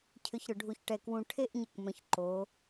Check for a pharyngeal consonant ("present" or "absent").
absent